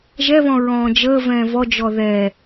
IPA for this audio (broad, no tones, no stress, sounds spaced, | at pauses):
ʒ ɛ β ɔ̃ ɹ ɔ̃ː d͡ʒ əː v ɛ̃ː v ɔ d͡ʒ ɔ ð ɛː